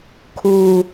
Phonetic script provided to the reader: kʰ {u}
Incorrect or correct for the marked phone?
correct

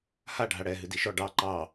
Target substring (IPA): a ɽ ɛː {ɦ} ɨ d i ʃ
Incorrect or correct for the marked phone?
correct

